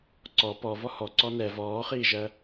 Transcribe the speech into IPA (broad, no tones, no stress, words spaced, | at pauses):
ǀɔ pɔ vɔhɔ ǀɔnɛ vɔːχiːʒɜ